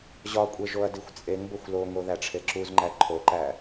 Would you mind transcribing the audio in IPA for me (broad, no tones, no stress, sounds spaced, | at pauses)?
ʑ ɒ kʷʼ e ʒ o ɐ̯ d i xʷ t͡sʼ e ŋ b o xʷ l o ŋ o ð æ ʈ͡ʂʰ e ǁ u z ŋ͡ǃ æ ǃʰ o ǃ æ